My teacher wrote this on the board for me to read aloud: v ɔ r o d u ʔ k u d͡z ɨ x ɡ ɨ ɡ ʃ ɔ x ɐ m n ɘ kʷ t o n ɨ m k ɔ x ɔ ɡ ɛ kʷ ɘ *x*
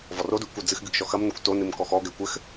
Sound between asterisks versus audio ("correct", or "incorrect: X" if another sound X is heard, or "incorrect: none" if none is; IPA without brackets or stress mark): correct